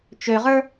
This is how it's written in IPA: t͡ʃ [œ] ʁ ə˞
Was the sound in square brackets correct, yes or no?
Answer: no